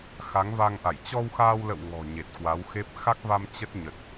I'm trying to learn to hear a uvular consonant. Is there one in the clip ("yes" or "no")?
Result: no